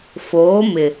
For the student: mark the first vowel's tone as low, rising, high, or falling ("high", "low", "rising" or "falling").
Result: rising